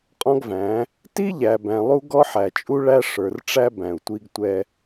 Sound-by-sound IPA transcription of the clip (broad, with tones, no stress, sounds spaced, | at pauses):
qʼ ɔ̃˦ ɡ v æ̃˨˦ | t i˦ ʎ æ˨ b æ̃˨ lˠ u˦ ɡ ɔ˦ ħ æ˨ t͡ʃʼ u˦ ɭ æ˦ ʂ ə˞˨ r ʈ͡ʂ æ˦ b æ̃˨ u̯ tʷ i˦ ɡ tʷ ɛ˦